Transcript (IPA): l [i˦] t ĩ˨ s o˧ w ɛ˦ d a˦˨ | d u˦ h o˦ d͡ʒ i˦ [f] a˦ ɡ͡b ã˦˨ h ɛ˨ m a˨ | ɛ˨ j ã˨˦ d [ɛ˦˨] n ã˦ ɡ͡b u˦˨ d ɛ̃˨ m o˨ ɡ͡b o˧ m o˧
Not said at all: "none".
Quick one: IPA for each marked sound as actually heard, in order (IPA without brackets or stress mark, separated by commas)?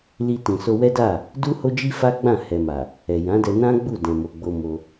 i˧, f, ɛ˧